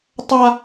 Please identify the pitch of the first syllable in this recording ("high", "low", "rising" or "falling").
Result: high